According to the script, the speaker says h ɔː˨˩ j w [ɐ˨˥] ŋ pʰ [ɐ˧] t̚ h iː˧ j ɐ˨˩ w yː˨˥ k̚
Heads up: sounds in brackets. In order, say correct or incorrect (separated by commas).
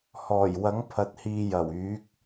correct, incorrect